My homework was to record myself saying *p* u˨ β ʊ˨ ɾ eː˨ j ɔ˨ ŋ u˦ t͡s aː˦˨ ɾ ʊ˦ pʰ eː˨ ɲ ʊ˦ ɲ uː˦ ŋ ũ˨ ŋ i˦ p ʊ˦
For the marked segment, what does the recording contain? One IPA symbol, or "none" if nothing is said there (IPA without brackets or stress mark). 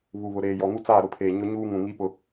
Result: β